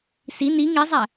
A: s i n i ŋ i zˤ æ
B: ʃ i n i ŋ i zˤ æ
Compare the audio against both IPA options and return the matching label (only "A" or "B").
A